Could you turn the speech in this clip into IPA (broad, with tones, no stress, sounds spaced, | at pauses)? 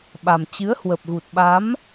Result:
ɓ a˨˩ m t͡ɕ ɨ˨˦ ə̯ h w ə˨˩ p̚ ɣ u˨˩ t̚ ɓ a˨˦ m